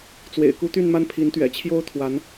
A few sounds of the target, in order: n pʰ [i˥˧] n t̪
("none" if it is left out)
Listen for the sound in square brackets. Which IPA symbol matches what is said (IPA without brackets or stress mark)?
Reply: i˧˥